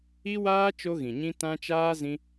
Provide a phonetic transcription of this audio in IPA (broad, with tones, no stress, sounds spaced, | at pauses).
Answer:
i˦ w aː˦ t͡ʃ o˦ ɣ ĩ˨ ɲ ĩ˦ t ã˦ t͡ʃ aː˦ z ĩ˦